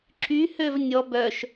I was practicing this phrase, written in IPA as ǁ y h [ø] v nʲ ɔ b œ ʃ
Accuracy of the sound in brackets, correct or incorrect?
correct